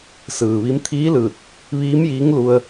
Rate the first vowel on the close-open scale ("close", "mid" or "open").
close